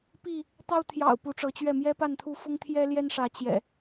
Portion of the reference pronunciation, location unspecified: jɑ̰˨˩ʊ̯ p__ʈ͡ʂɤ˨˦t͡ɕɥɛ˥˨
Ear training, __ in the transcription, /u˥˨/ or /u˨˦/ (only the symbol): u˨˦